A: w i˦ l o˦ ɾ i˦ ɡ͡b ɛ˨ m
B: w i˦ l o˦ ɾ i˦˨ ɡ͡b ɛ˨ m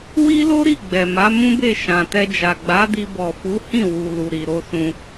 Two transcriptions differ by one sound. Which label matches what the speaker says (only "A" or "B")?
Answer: B